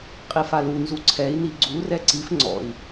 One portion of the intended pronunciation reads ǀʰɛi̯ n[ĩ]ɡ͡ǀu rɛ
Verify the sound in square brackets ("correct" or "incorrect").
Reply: incorrect